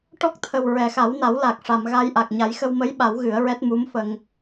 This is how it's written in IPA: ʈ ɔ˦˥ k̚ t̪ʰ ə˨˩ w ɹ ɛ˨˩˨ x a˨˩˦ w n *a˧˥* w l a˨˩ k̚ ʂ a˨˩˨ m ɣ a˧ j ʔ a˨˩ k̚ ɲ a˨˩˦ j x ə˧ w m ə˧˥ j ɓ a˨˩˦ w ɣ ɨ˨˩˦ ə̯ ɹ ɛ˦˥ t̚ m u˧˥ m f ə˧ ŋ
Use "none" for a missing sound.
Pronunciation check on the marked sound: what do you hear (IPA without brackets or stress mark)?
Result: a˨˩˦